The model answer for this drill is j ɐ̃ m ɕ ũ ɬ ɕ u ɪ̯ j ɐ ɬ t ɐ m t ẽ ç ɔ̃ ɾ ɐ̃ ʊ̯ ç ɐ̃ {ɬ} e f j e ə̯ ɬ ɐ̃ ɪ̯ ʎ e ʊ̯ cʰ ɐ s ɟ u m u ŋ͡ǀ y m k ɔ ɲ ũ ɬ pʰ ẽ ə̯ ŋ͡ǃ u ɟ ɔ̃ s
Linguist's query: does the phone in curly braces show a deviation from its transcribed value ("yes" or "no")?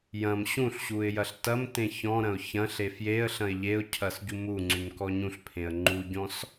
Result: no